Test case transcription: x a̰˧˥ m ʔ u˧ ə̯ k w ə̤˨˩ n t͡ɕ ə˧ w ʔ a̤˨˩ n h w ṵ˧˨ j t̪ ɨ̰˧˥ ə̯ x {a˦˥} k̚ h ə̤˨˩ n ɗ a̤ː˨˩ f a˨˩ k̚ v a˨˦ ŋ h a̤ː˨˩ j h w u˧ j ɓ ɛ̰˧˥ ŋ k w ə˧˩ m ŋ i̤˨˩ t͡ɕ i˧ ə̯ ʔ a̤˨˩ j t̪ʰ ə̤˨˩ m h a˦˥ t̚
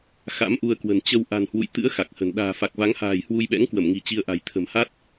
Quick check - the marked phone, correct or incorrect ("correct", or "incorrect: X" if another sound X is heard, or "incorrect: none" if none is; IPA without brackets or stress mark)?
incorrect: a˨˩